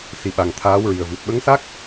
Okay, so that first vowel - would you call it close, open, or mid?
close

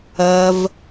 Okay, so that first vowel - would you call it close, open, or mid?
open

